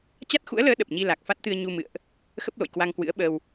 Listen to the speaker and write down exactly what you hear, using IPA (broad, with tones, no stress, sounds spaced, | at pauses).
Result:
t͡ɕ a˦˥ t̚ x ṵ˧˥ ə̯ l əː˨˦ ɗ ə˨˩ p̚ ɲ i˧ l a˨˩ k̚ f a˦˥ t̚ t̪ ɨ˧ ə̯ ɲ u˧ m ɨ̰˧˨ ə̯ ʔ | x ə˦˥ p̚ l o̰˧˨ j k w a˧ ŋ k w ɨ̰˧˥ ə̯ ɓ əː˧ w